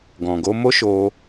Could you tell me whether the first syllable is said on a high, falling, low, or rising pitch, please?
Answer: low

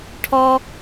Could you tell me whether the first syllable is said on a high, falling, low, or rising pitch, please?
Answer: high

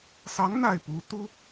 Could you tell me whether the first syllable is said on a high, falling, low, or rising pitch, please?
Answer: rising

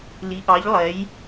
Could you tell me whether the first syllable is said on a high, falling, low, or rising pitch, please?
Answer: rising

